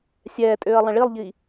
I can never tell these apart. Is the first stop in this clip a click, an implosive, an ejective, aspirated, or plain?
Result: ejective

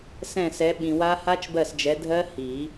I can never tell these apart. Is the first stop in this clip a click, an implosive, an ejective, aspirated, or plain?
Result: implosive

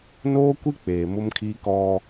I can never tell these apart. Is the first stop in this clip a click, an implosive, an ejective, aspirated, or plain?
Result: plain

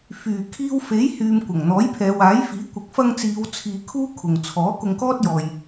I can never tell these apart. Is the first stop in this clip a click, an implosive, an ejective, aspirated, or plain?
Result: aspirated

